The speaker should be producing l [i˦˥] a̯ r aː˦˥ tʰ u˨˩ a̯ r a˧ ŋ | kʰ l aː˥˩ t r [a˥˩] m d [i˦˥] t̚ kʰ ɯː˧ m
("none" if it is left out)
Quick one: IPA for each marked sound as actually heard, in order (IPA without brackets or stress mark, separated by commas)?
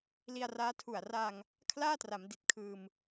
i˧, a˩˦, i˨˩